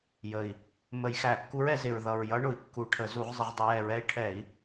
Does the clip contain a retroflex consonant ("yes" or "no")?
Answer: yes